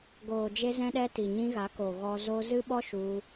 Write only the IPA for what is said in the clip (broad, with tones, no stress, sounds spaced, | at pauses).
ɡ oː˨ d͡ʒ e˧ z ɛ̃˧ ɗ ɛ˧ t i˨ ɲ ĩ˧ ɣ a˨˦ k o˨ ɣ ɔ˧ z o˧ z ɨ˦ ɓ ɔ˦ ʃ u˧